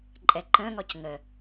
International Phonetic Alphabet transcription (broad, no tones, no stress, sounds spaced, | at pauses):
ǃʼ ɛ ǃ ə̃ ŋ ɔ c ŋ ə